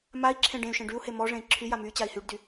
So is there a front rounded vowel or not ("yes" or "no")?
yes